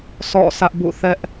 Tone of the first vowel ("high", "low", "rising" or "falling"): falling